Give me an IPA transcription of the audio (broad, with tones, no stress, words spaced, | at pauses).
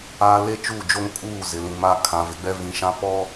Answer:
aː˦ le˦t͡ʃuː˦˨d͡ʒo˦ŋ kʼuː˦˨ zɪ˨lĩ˨ma˦ kʰã˨vɪ˨ɡ͡bɛ˦ vĩ˨ʃã˦ pɔ˦